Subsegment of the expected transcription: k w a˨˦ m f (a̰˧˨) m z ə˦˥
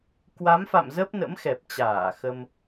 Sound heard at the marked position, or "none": a̰˧˨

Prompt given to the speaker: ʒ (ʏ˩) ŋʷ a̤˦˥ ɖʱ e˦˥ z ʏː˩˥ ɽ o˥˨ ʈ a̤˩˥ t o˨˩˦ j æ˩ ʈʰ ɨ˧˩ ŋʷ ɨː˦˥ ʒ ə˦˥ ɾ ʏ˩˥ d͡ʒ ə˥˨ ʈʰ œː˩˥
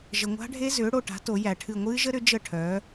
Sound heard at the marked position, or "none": ə˩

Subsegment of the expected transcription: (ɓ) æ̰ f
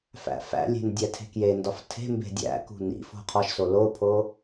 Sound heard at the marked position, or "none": f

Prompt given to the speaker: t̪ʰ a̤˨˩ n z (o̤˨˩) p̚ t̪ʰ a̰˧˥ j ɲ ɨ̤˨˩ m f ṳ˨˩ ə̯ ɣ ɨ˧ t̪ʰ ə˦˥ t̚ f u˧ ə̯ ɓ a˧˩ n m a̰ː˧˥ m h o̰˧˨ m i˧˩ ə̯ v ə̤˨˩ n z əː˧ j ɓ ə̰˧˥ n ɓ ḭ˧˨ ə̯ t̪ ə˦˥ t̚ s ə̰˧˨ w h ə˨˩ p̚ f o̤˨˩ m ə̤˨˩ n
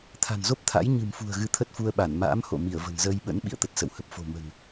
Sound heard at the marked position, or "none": o˦˥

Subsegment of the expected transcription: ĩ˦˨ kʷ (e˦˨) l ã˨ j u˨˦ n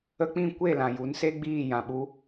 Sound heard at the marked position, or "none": e˦˨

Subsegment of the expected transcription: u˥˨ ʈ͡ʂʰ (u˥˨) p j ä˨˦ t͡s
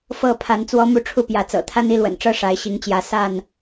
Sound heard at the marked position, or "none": u˥˨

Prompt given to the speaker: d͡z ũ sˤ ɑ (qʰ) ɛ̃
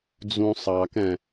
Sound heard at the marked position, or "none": k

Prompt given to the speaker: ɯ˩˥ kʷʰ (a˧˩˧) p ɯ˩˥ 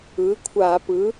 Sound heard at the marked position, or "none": a˧˩˧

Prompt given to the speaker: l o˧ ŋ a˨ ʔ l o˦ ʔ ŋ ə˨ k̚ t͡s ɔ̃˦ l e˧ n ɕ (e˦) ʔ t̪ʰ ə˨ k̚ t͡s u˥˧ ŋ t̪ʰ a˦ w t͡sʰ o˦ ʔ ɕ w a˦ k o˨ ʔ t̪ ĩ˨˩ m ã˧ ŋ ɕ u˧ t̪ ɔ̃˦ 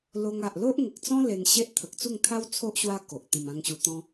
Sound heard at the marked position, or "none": e˦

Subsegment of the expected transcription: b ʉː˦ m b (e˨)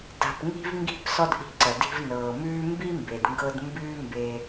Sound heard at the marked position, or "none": e˧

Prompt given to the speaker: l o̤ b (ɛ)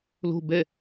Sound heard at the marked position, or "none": ɛ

